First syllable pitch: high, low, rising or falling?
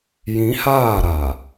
rising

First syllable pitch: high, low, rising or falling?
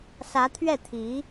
rising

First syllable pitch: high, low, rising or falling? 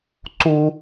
high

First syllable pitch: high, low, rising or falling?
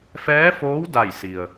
rising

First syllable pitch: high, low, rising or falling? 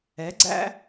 rising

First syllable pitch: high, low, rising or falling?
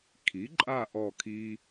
rising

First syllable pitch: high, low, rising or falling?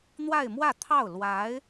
falling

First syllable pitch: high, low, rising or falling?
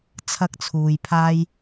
high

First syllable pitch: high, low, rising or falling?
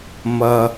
low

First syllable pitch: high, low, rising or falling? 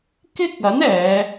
high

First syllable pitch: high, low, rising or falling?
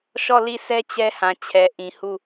falling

